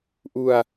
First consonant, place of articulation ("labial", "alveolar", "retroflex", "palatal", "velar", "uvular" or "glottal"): glottal